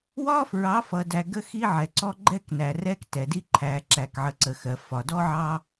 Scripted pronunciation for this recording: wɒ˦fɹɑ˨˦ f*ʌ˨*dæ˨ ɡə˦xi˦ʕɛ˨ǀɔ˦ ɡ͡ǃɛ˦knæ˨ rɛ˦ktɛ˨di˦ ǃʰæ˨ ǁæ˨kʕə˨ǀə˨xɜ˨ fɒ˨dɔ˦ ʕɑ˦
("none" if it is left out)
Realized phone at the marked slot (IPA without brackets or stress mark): ʌ˨